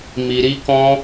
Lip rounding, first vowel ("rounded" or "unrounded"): unrounded